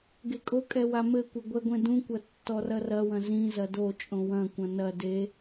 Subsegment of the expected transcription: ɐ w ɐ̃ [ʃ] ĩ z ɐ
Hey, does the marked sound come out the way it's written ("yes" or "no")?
no